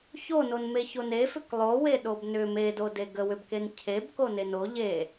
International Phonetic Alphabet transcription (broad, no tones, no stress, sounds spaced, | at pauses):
ç o n o n m e ç o n e f ʏ k lˠ o w e ɗ o b n ʏ m e d o d e ɡ ə w ʏ b k e n cʰ e b k o n e n o ʎ e